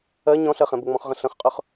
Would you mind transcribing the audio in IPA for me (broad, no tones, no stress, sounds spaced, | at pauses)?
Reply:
ɜ ɲ ɔ̃ ɬ ɜ χ ɛ̃ b ʊ ŋ͡m ɔ̃ χ ʁ ə̃ ɬ ə̃ χ qʼ ʊ χ